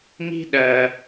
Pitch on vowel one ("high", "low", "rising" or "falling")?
high